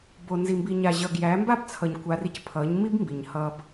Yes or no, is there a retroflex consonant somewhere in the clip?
no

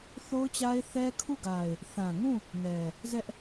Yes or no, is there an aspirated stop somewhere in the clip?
yes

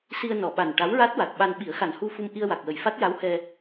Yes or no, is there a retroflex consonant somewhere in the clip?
yes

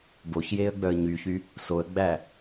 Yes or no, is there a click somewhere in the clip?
no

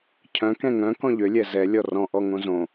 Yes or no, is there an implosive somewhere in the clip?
no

